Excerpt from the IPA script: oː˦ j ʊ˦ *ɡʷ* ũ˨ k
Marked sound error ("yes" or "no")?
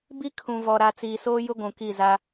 no